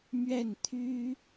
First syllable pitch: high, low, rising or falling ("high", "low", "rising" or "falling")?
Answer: falling